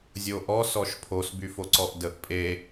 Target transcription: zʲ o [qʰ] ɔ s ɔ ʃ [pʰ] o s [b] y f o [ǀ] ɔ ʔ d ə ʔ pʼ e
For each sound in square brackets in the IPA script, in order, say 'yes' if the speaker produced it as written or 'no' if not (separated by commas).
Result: no, yes, yes, yes